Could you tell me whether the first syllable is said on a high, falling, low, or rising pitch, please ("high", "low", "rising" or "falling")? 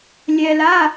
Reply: low